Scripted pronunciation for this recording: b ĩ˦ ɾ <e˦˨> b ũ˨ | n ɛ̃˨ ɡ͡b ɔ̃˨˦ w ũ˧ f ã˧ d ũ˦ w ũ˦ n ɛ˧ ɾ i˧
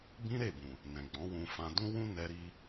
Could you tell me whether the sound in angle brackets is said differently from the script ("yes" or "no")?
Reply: no